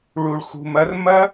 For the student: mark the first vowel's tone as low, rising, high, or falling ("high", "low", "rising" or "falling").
low